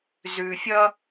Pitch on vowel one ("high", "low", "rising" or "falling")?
low